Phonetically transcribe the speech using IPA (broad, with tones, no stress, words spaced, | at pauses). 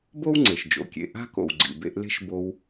bo˥w ŋ͡ǀe˩ʃd͡ʒo̰˩kʲḛ˧ ʔa̤˥ko̰˩wɡ͡ǀḭ˩ bḛ˧ʔle̤˥ʃ bo˧w